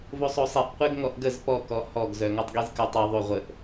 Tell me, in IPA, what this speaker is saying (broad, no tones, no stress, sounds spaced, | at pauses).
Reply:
v o sˤ o sˤ i ʔ qʷ e ɡ ŋ ɔ ʔ ɡ ə z p ɔ k ɔ h ɔ ɡ z œ ŋ ɔ tˤ ɡ i z k œ tˤ i ðˤ u ʁʷ ə ʔ